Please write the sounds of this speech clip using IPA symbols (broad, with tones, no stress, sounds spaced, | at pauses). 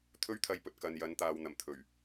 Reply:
t̪ʰ ɵ˥ ɥ t̪ʰ ɐ˧ j p ɵ˨ t̚ k ɐ˨ n j ɐ˨˥ n t̪ aː˨ w n̪ ɐ˨˩ m t̪ʰ ɵ˨˩ ɥ